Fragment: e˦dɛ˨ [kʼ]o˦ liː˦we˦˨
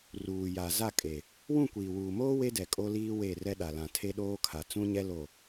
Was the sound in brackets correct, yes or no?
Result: yes